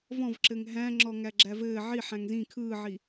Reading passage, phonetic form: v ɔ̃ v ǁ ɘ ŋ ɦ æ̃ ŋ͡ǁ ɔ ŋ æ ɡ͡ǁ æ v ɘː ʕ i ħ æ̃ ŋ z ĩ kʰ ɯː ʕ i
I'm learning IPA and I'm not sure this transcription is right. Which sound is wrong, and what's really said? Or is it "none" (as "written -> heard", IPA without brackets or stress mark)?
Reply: none